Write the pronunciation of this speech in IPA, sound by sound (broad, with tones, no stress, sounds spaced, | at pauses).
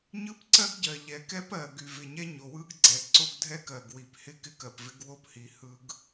ɲ ɯ˦ p ǀ ɜ˦ ɡ ɟ ɜ˨ ʎ ɛ˨ k ɛ˦ p ɜ˨ ɡ y˨ v ɪ˨ ɲ ɛ˦ ɲ o˨ w ɯ˦ ɡ ɡ͡ǀ ɛ˨ ǀ o˦ ɡ dʱ ɛ˦ k ɜ˨ ɡ w i˨ p h ɪ˦ k ɪ˦ k ɜ˨ p v ɪ˦ ɡ w o˦ p h i˨ h ɯ˦ ɡ